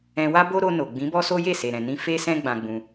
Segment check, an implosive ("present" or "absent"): absent